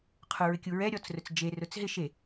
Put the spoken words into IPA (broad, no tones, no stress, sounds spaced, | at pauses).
qʰ ʊ ɹ ɪ kʲ u ɹ ɛ ɾʲ ɔ t͡s r ʊ t͡s d͡ʒ e r ʊ t͡s ɦ ɪ ʃ e